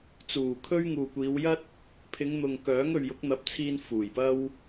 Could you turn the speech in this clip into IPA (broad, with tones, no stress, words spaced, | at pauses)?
t͡suː˨˩kʰɵ˥ɥ ŋuː˨kʷiː˨˧wjɐ˥t̚ | pʰɪ˨˧ŋn̪ʊ˨ŋkœː˨˥ŋ ɵ˨ɥjʊ˨˥k̚n̪ɐ˨˥p̚t͡sʰiː˧n fuː˨˩jpɐ˥w